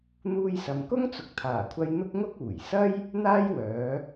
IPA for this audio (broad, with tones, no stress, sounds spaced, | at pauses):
n̪ uː˧ j s ɐ˨ m k ʊ˥ ŋ t͡s ʊ˨˥ k̚ t̪ʰ aː˨˩ kʷʰ ɐ˧ j n̪ ʊ˥ k̚ ŋ ʊ˥ k̚ uː˨˩ j s ɐ˥ j | n̪ aː˥ j w œː˨˧